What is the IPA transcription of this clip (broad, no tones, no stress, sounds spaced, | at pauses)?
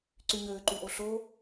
ǀ y ɲ øː ǃ y ʔ o ɬ oː